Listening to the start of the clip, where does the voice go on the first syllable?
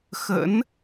rising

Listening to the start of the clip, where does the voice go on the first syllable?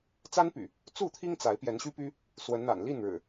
high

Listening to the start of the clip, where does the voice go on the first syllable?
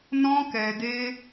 high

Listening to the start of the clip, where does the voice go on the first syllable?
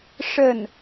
falling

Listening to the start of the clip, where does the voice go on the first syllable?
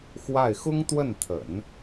falling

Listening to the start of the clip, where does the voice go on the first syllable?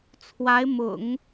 rising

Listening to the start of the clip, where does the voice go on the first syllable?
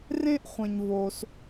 high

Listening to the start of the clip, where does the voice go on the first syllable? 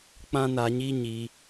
high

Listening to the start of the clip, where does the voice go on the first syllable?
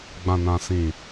low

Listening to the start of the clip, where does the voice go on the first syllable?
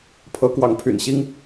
rising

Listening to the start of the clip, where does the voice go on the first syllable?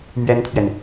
high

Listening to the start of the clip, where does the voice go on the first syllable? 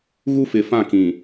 high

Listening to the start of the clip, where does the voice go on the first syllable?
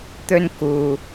high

